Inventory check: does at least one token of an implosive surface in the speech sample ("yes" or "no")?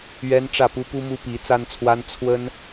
no